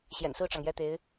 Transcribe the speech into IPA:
ɕjɛ̰˨˩nsɹ̩˥˩ʈ͡ʂɑ˩ŋ jɛ˥˩t̪e˧˥ɪ̯

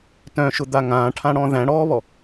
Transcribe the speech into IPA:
tœ̃ʃʊd̪a ŋãːʈʰãɽɔ̃ ðæ̃ɽɔːβɔ

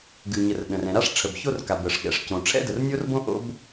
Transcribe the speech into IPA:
ɡʉ˩ɲə˩r ɗə̃˩r ɛ̃˩ɾa˥ʂ ʈ͡ʂʰə˩bço˥rka˩ bə˩ʂ ɠɛ̰˩ʂcõ˩ ʈ͡ʂʰɛ̰˥də˩rnʲo˥rbõ˥ ʔo̰˥b

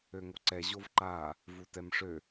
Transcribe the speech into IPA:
øŋoǀɛ ʑovǃa | vutɛmʂø

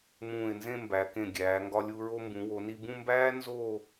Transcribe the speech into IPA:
mũː˧˩ɪ̯nzẽ˥˧mbæ˩˧ kẽ˧˩ ɡʲæː˩˧ŋɡɒ˧lʲu˧ ɹo˧mbũ˩˧ wo˩˧ni˧ bũ˥˧mbæː˥ nzo˥˧

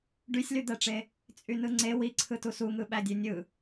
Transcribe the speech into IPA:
ɖysʲlyd̪æʈ͡ʂe | t͡sʼynɯŋ͡ǀe wiǀʰɯ tusuŋɯ ɓædʲønʲɯ

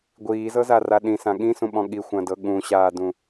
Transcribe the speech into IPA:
ɡʷiːzɤzara ɗĩsã ɠĩsũɓɔ̃ ɠixʷãdɤ ɠũɕaːdũ

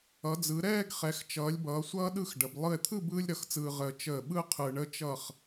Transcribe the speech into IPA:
ʌ˩˧d͡zɯ˩˧ ɾɛː˥˧ɡ χɛ˩˧xt͡ʃʌː˩˧lʲbʌː˩˧ sʷʌː˥ɗɯ˥˧xɖə˩˧b lˠɯ˧˩e̯t̪ʰɯ˥˧ bɯː˥lʲɾʌ˧˩xt͡sɯː˧ ʁəː˧ t͡ʃəː˧˩ ɓɯ˥ qʰɯ˧ɳə˥t͡ʃʌ˥˧χ

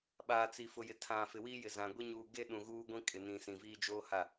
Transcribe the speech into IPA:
ɓaː˨t͡si˨fʊ˨ jɪ˨tʰã˨fɪ˨wiː˦ jɪ˨zã˨ɡʷi˦ ɲuː˨ɡe˦ ɗũ˨ɣuː˦ɡʷĩ˦ kʼɪ˨nĩ˨ sĩ˨viː˦d͡ʒoː˦ha˦˨

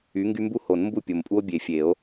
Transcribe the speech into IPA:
y˨˦ŋɡy˦mbu˥˨ho˨˩˦n mbu˥˨pʲo˨mpʼu˦o̯ bʲe˨fʲe˨˩˦o̯

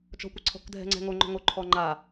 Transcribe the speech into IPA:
t͡ʃɔ̤kʷɪǀʰɔ̤k dʱɛ̤ŋ͡ǀɛ̤ŋo ŋ͡ǃɔ̤ŋo ǃʰɔŋ͡ǃa

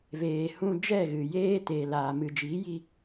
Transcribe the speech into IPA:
veː˨ hũ˧d͡ʒɛ˦˨ɣɨ˨ jeː˦teː˨laː˨ mɨ˨d͡ʒi˨˦ji˧

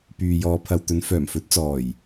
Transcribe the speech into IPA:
pyː˨jɔː˨˧pʰɐ˨wt̪ɵ˨˧n fœː˨˩m fɵ˨˥t̚t͡sɔː˨˩j

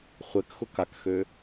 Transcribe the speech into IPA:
χʷɛkxʊ kakxø

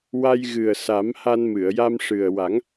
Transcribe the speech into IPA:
wa˧jɣɨ˨˩ə̯sa˨˩˦m ha˧nmɨ˨˩˨ə̯ja˧mʂɨ˨˩ə̯ wa˨˩˦ŋ

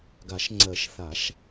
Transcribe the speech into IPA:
ɡa˨˩˦ʃŋ͡ǀɜ˨˩˦ʃ θa˨˩˦ʃ

